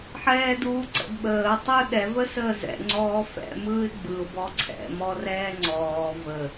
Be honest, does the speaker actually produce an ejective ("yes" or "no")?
no